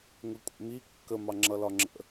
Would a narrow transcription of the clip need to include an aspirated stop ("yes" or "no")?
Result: no